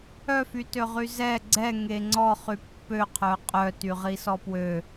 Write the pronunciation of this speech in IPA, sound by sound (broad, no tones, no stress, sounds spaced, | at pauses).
œ f y t ø ʁ y z ɛ ɡ͡ǀ ɛ ŋ e ŋ͡ǀ ɔ χ y pː ø qʰ œ qʼ œ t y ʁ i s ɔ p w ø